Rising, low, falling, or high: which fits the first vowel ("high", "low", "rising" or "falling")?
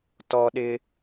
high